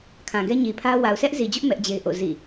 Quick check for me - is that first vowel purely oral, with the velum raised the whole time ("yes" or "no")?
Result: no